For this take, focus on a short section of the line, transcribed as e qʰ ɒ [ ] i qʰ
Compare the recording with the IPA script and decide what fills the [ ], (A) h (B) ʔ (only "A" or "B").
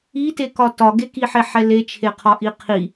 B